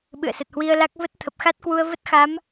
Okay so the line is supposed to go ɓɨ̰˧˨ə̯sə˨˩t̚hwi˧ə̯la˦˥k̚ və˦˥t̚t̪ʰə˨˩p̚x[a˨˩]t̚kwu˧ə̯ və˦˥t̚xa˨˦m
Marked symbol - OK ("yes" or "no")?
no